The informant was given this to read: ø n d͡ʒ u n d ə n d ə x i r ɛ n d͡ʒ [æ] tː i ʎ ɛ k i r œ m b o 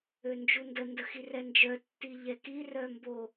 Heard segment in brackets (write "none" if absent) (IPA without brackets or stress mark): œ